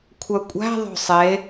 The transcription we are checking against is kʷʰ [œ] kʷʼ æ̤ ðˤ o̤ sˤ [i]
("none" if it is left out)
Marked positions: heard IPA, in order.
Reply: œ, e

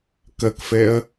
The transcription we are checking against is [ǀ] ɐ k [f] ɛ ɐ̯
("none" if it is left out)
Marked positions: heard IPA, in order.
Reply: k, f

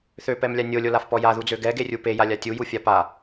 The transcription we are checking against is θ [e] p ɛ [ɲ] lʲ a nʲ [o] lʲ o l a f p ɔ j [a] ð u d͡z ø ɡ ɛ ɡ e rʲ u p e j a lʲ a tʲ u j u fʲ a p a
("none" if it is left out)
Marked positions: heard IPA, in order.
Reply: ø, m, o, a

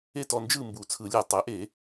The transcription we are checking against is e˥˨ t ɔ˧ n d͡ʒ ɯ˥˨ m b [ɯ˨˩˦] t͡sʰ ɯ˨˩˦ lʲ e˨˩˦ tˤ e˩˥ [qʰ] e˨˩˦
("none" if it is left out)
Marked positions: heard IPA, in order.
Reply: u˨˩˦, ʔ

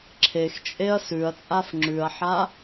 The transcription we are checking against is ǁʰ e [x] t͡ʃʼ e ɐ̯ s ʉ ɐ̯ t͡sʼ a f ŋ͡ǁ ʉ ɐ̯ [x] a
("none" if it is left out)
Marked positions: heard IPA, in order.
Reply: x, ħ

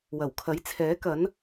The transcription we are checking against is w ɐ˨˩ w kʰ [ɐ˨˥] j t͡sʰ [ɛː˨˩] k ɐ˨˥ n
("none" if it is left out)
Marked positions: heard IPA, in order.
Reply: ɐ˨˥, ɛː˨˥

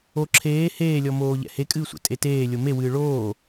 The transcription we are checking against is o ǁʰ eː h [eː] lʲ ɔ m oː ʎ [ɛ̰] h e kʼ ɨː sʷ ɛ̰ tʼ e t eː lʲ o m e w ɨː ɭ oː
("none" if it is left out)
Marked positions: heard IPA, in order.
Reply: eː, ɛ̰

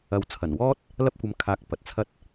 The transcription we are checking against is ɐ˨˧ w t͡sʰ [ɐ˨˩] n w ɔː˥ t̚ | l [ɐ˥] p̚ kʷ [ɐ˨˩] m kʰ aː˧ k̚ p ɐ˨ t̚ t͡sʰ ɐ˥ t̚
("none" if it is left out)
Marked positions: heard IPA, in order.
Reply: ɐ˨˩, ɐ˥, ɐ˧

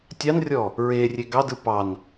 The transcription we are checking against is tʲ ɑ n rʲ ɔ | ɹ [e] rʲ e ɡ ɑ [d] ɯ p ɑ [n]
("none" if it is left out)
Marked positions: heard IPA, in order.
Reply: e, d, n

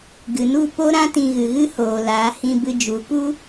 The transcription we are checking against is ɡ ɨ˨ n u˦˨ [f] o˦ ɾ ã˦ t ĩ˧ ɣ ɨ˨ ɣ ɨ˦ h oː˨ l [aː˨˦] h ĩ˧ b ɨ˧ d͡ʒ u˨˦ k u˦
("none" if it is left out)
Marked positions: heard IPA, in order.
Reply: p, aː˨˦

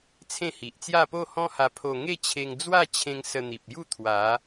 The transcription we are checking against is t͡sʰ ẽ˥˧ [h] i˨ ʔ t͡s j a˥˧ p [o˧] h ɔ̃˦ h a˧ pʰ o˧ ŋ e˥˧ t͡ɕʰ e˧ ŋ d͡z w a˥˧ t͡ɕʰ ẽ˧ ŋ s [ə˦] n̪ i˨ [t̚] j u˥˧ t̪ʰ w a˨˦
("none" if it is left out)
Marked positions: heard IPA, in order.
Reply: h, o˥˧, ə˧, p̚

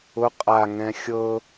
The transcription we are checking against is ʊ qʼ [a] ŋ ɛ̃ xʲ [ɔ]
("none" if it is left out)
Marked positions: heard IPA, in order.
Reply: a, ɤ

